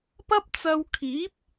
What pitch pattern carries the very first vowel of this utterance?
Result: high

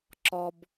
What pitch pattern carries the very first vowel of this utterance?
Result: low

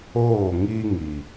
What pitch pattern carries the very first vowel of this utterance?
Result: falling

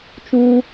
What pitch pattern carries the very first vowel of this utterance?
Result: high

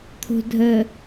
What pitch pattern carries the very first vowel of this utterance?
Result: low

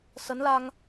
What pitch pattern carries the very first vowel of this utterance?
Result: rising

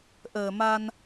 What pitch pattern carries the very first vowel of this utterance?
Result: low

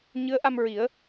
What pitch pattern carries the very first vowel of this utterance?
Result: rising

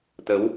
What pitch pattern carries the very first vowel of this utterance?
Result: rising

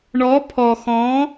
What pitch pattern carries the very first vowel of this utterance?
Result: rising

